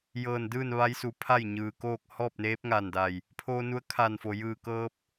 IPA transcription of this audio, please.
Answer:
j ɤː˧˩ n d ɯː˥˨ n ʋ a˧˥ j s u˩˧ pʰ a˥˨ j ɲ ɯː˩ k oː˥˨ k̚ h ɔː˥˨ p̚ n eː˧˥ p̚ ŋ a˧˩ n d a˧˩ j | pʰ oː˧ n u˧˥ ə̯ kʰ aː˧˩ n f o˩ j ɯː˧˩ k ɤː˧ p̚

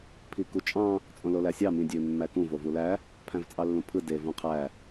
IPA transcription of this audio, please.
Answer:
pʰ i k u t͡ʃʼ ɑ̃ | t͡sʼ õ l o l æ sʲ ɑ m ĩ dʲ ø mː æ k ũ v o v u l æ | pʰ æ̃ v t͡sʼ ɑ lː ũ pʰ ɯ d e v ũ qʰ æ

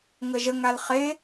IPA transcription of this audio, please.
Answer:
ŋ ə ʒ ə ŋ a l χ e

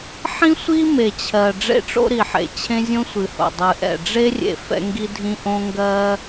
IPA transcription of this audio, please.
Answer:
ħ ĩ˥ sʷ i˥ m e˩ t͡ɕʰ ɜ˩ ɖ͡ʐ ḛ˥ ʈ͡ʂ o̰˥ ɾ i˩ ħ ḛ˩ t͡ɕʰ ẽ˥ zʲ õ˥ sʷ ɨ˩ h o̰˩ dˤ ɨ˩ ʔ ɛ̰˩ ɖ͡ʐ e˥ rʲ ḛ˩ f ɛ̰˥ ŋ ɡ i˥ dʱ ĩ˥ ʔ õ˥ ŋ ɡ ɜ˥

